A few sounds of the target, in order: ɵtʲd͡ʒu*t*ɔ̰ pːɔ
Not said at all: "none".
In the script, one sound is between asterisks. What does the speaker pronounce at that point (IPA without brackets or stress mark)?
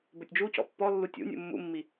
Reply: c